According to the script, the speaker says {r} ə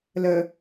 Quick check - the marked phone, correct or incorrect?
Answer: incorrect